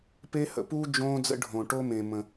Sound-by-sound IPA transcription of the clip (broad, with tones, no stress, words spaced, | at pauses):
pe˦hə̰˧puː˦ d͡ʒõː˦d͡zə̰˦ɖʱõ˧ ʈo˦mẽ˧mə̃˧